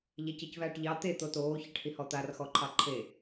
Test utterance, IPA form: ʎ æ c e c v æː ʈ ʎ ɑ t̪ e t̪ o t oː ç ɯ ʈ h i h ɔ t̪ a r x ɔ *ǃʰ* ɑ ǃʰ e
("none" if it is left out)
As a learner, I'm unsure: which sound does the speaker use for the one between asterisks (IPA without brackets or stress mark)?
ǃʰ